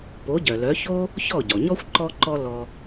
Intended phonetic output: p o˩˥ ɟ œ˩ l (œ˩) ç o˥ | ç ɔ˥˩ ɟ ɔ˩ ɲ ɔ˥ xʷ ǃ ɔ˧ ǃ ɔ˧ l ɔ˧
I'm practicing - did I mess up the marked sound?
yes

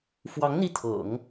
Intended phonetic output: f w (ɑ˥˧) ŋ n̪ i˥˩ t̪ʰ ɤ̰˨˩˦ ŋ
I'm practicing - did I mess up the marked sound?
yes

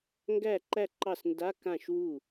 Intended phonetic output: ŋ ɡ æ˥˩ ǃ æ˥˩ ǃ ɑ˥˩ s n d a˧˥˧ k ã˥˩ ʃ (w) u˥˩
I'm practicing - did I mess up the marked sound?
no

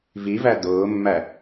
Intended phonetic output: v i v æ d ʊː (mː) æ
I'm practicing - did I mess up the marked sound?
no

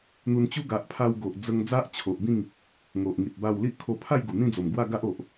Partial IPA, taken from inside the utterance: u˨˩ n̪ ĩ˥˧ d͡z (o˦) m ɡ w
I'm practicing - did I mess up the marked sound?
yes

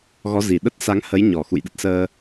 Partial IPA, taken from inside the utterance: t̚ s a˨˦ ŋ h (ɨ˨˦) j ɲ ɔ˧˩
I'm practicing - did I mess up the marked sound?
yes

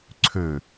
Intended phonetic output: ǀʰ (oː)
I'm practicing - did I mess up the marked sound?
yes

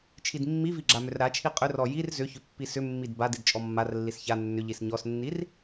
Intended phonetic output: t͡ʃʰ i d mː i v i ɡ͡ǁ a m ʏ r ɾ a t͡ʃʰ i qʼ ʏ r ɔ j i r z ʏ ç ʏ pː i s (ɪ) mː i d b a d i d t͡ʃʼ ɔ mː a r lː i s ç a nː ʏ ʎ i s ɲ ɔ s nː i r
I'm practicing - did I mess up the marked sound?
yes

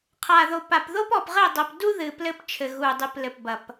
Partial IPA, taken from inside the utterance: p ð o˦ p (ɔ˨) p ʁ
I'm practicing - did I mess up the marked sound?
no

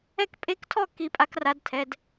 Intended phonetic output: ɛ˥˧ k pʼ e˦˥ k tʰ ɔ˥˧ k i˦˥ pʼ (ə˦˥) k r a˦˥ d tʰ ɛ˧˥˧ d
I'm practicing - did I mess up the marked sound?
yes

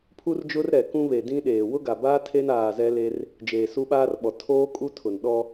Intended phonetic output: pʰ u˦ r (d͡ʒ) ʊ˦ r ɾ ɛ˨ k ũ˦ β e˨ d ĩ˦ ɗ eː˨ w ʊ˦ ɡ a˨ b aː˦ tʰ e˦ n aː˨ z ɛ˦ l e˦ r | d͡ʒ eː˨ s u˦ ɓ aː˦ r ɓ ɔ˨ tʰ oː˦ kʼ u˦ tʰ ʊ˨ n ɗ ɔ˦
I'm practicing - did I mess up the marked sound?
no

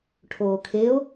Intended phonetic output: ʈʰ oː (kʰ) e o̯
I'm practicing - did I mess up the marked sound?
no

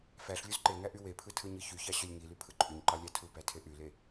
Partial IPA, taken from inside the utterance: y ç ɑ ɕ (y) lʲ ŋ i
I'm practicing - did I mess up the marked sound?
yes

